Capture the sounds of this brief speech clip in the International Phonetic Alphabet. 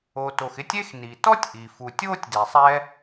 o˨ t o˨ x ɪ˦ tʲ e˦ x n i˩ t ɔ˥ tʲ ʔ i˩ f u˨ tʲ oː˥ tʲ d e˨ sˤ ɛ˦

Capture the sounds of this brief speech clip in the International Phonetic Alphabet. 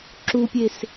ǁ u pʲ e s

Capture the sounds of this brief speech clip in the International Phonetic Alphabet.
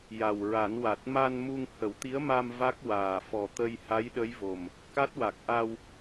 j a˨˩ w ɹ a˨˩˦ n w a˨˩ t̚ m a˧ n m u˧ ŋ h ə˨˩˦ w t̪ i˧˥ ə̯ m a˧ m v a˦˥ k̚ w aː˨˩ f ɔ˨˩ t̪ ə˧ j h a˧˥ j ɗ ə˧˥ j v o˨˩ m | k a˦˥ t̚ w a˨˩ k̚ ʔ a˧ w

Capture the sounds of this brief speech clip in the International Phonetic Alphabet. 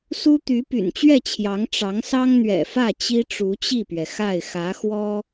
s u˥ t̪ y˧˥ p y̰˨˩ n t͡ɕ ɥ ɛ˥˩ t͡ɕʰ j ɑ˧˥ ŋ ʈ͡ʂ ɑ˧˥ ŋ s ɑ˥ ŋ n̪ ɥ ɛ̰˨˩ f ä˥˩ t͡ɕ i˥ ʈ͡ʂ u˧˥ t͡ɕ i˥˩ p ɥ ɛ˩ x a˥˩ ɪ̯ x ä˧˥ x w ɔ˥

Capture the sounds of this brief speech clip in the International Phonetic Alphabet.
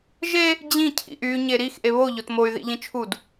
ʒ e | d͡ʑ ĩ cʰ ḭ ʔ y ɲ e ɾ i x ʔ e β o ʎ o t m o y̯ ð ḭ ʎ ĩ t͡ʃʰ u d

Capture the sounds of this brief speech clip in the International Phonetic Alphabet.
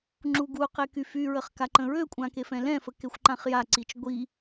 ŋ͡ǁ u ɡ u q e k y f y ɹ ə χ k a ǃ ə̃ ɹ ø kʷʼ ã k e f ɛ̃ l ɛ̃ f ə k e xʷ ǃ ã χ j a ǀ i t͡ʃ ɡʷ i

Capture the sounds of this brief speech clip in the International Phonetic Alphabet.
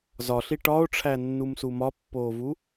z ɒ ɬ i ʈ ɒ o̯ ʈ͡ʂʰ æ nː u m s u m ɒ pː oː v u

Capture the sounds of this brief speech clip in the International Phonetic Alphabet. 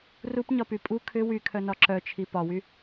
r u p ɲ ɒ p y pʼ u kʰ ʏ w y kʰ œ n ɒ ǁ œ t͡ʃʰ i p ɒ w y

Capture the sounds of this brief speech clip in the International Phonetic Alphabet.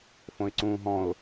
f õ ɪ̯ ǀ ũː ɦ ɔ̃ ʊ̯

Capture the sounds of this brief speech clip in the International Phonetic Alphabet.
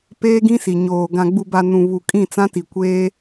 p eː˦ ɡ ĩ˦ s i˨ ɲ oː˨ ɡ ã˨ ɡ͡b u˨ b a˨ n ũ˨ β u˨ kʼ ĩ˦˨ t͡s ã˦ t i˨ kʷ eː˦

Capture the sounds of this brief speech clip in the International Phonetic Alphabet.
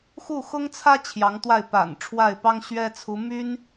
x u˥˩ x ʊ˥ ŋ t͡sʰ ä˥ t͡ɕʰ j ɑ˧˥ ŋ t̪ w a˥˩ ɪ̯ p a̰˨˩ n ʈ͡ʂʰ w a˥˩ ɪ̯ p ɑ˥ ŋ ɕ ɥ ɛ˥ t͡sʰ u˧˥ m y˥ n

